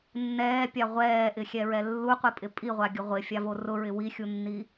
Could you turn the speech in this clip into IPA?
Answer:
nːɛːpʲa ʁʷɛːʔɪxʲɛɹɛ lːuqʷipʼɪ pʼiʁʷaɡʲʊ ʁʷɪfʲavo rʊɹɪ wixʲunːi

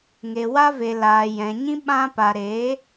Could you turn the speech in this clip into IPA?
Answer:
ŋe˨wa˦ve˨laː˨ jɛ̃˨ɲĩ˦ ɓã˧pa˨ɾe˨˦

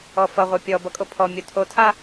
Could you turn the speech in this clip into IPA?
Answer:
ɔfʌ ʁʷœpʲɔbʌ kʼopʰɔ mʲotʰotʰa

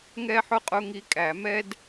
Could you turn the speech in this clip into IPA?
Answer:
ŋɛ˥ħʊ˥qʼʊ˧˥˧ ŋi˧˥ kʼæ˨˩˦mɛ˥d

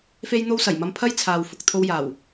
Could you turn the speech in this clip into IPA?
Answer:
fe˥jn̪o˥w sɐ˨˩jmɐ˧mpʰɐ˥j t͡sʰaː˧w fʊ˨k̚t̪ʰo˥wjaː˨˩w

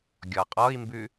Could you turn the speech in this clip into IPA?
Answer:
ɡʲɔqʼɔi̯mbʉ

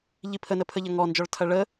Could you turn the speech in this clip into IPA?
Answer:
ʎipʰənə pʰəʎɐŋɔnd͡ʒɔɭ tʰɐɭə

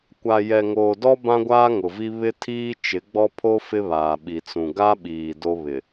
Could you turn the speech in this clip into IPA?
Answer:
kʷa˨ jɛ˨ŋoː˨dɔ˦ bã˦ɡʷaː˦ŋʊ˨vi˦ βɪ˦tʰiː˦ t͡ʃɪ˨˦ɡ͡bɔ˦pʰo˦ fɪ˦βaː˨ ɓi˨t͡sũ˨ ɡa˦ɓiː˨ do˦βɪ˨

